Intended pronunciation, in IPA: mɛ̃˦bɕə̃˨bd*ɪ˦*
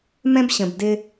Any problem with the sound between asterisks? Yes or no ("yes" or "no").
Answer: no